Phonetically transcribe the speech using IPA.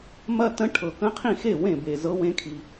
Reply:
mɐ˥˧ tə̃˧˥ ʈʰɤ˩kə̃˧˥qʰĩ˥˩xe˥˩ wẽ˥˩be˩zɤ˧˥ wẽ˧˥kʰi˩

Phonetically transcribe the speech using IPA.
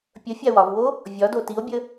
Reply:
pʲə fʲawɒvwo | vʲɒdo tio̯bʲə

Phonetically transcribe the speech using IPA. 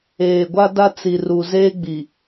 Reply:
eː˨ɡʷa˦da˦ t͡si˨ru˨ zeː˦ɡ͡bi˨

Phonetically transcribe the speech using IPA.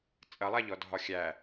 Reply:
t͡sʼɐlˠaʎɔ dʱɒxʲæ

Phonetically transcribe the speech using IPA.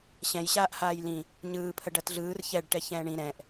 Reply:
ɕɛ̃jɕaːʔ haːjlĩ | ɲɯːpʰə ɖɐtɮɯːr çɛɖ ʈɛçɛ̃ːɳĩ ɾɛ̃ʔ

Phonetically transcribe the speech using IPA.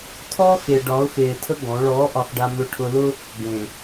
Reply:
tʰɔː˦xe˨ ɖɒ˨˦ʊ̯xeː˨tʰə˦ ɡɔ̃˨˦ ɭɔː˨˦ʔɒ˨xɖa˨ mʏ˨ ʈʰʊ˨lʊ˦ | ɡẽ˨

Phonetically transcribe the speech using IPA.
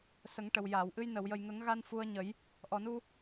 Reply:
sə˨˩˦ŋʈə˨˩w jaː˨˩˨wʔɨ˧j nə˨˩˨wjə˨˩jŋə˨˩˦ŋɣa˧n fu˧ə̯ɲə˨˩˦j | ʔɔ˨˩nu˧

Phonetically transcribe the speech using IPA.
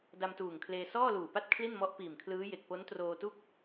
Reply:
da˧mtuː˨˩ŋkʰleː˧ sɔː˥˩luː˨˩pa˥˩t̚ kʰli˥˩nmɔ˦˥ʔ piː˨˩mkʰlɯː˦˥je˨˩k̚ po˦˥ntroː˧tu˥˩k̚

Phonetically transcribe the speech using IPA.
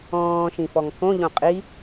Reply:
ɔ̃ː ʃĩfɔŋkõ ʎõqʼi

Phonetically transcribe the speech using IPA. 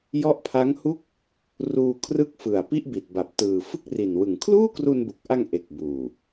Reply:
jɔ˦˥ʔpʰa˦˥ŋhu˥˩k̚ | ruː˧ kʰrɯ˥˩k̚ fɯ˨˩a̯pi˥˩ʔbi˨˩t̚ba˨˩p̚ tɯː˨˩ fɯ˥˩k̚ri˨˩nwɯ˨˩ŋ kʰluː˥˩kru˧nbu˨˩k̚ʔa˧ŋ ʔe˨˩k̚buː˨˩

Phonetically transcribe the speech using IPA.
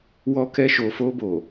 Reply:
wɔ˧kɛ˧ʃo˨fo˧ bo˨

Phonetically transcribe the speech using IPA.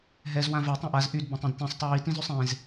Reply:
ɦɛz wãvɛ tˤɛ̃ʔaz ʔyd bɛ̃tˤẽdtẽsˤ tˤiji tĩzysˤẽz

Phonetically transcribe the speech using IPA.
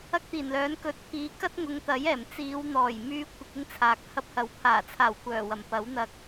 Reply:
ɐ˥k̚t̪iː˨˩nlœː˨˥n kɵ˨t̚pʰiː˨˧ kɐ˥t̚ ŋʊ˨˧ŋt̪ɐ˨˥jɛː˨˩m t͡siː˨˧wn̪ɔː˨˩jmyː˧ kʷɪ˧k̚ɪ˥ŋt͡sʰaː˨˥k̚ hɐ˧p̚hɐ˨˥wpʰaː˨˩t͡sʰaː˨˩w kʷœː˨˩wɐ˨˩mpɐ˨˥wn̪ɐ˧k̚

